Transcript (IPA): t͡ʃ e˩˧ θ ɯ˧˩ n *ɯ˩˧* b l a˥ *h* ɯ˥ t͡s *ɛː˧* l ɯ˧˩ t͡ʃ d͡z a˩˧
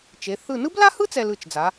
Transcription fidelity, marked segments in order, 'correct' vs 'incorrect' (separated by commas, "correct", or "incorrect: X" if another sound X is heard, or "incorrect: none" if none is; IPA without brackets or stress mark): incorrect: ɯ˥, correct, incorrect: ɛ˧